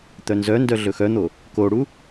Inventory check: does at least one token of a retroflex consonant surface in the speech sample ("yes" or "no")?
yes